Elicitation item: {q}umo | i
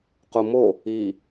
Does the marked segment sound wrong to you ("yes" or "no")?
no